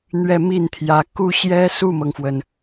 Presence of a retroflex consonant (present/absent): absent